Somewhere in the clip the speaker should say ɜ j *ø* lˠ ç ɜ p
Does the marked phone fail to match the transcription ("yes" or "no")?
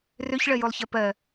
yes